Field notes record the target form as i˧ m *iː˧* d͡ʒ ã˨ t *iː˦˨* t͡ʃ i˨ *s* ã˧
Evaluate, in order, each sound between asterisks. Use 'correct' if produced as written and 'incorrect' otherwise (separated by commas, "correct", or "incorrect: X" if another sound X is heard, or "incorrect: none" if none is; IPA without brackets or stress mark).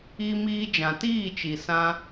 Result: correct, correct, correct